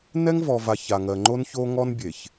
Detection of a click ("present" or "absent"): present